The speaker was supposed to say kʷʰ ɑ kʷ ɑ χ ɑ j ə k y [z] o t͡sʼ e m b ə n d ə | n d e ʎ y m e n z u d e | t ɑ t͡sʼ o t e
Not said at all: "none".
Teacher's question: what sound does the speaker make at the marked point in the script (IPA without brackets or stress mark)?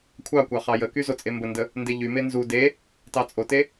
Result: z